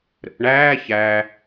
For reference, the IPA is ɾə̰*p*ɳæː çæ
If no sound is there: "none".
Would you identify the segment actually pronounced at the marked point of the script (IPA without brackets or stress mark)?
p